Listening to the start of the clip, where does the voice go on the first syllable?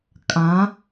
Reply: rising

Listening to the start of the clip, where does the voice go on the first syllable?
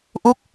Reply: falling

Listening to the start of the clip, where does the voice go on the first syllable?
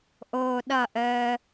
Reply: low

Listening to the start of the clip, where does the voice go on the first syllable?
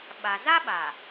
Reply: low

